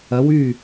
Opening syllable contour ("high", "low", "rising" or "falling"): rising